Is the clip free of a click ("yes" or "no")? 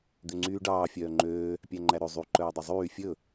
no